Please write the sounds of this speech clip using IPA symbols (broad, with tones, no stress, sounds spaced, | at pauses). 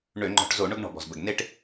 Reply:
ɳ ø˧˩˧ ŋ͡ǃ ɔ̤˧˩˧ ʈ z o˧˩˧ ɳ ʊ˦ ɡ ɳ ɔ̤˩ b ɔ̤˩ z b ə˩ ɡ n e˦ ʈ